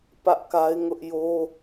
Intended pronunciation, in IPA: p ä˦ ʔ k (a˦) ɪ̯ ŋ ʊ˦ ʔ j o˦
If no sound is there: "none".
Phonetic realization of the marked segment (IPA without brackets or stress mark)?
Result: a˦